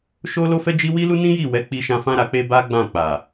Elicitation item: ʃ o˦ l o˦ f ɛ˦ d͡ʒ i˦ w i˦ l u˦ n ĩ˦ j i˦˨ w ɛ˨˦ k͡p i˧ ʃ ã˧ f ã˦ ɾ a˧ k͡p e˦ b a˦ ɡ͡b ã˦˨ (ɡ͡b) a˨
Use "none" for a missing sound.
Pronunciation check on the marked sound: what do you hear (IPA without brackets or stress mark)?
k͡p